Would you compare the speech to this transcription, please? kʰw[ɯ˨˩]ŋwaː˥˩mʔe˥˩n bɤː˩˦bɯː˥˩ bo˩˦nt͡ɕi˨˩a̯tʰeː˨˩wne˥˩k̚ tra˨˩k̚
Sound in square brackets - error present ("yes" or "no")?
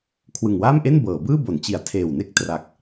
no